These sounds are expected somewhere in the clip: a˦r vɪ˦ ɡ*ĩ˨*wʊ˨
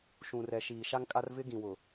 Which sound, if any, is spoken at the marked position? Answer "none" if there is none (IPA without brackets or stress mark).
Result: ĩ˨